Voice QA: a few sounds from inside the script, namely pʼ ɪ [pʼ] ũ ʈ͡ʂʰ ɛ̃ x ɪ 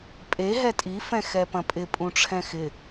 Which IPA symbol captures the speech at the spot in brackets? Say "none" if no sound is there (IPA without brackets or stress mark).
pʼ